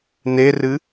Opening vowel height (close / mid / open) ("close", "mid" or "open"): mid